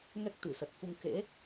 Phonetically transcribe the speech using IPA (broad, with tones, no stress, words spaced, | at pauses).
ŋɛ˦˥k̚ t̪ɨ˧˩sə˨˩t̚fu˧ŋ kḛ˧˥